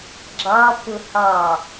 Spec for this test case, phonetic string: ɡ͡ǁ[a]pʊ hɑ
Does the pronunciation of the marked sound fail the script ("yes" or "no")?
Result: yes